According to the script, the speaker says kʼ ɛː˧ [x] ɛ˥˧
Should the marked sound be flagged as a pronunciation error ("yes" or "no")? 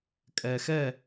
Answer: no